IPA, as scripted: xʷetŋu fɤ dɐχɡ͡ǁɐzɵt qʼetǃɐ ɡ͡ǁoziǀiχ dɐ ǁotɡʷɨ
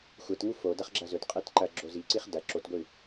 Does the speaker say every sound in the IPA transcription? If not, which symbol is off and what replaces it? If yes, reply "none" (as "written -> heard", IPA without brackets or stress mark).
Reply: ɤ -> o